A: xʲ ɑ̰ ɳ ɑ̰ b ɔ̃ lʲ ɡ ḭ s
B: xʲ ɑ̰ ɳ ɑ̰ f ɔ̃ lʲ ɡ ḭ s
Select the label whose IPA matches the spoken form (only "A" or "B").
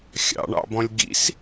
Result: A